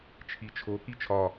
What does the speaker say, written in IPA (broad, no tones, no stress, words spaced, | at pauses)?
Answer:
t͡ʃʰit͡ʃʰo kit͡ʃʰɒ